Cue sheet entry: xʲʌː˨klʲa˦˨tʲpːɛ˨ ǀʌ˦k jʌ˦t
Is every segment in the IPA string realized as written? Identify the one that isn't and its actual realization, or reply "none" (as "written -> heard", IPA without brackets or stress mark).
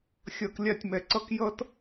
pː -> m